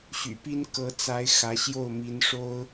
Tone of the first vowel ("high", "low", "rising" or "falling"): low